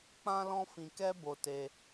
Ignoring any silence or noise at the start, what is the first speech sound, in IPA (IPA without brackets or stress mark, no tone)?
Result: k͡p